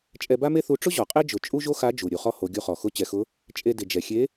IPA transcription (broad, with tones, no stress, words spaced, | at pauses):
t͡ʃʼɛ˧ba˥me˥θu˧˥ ʈ͡ʂʊ˥ ʑɔ˩qʼe˥d͡ʒʊ˩˧ t͡ʃʼu˥ʒo˥ xa˧˥d͡ʒu˩ ɾʲu˩˧χɔ˥ ho˩˧ɡʲu˧χɔ˩ xʊ˧˥t͡ɕɛ˩˧xʊ˧˥ | t͡ʃʼe˧ dɪ˩d͡ʒɛ˩xʲe˧˥